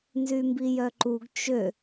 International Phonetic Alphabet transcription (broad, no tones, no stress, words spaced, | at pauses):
nzymbijœǃuɡ t͡ʃø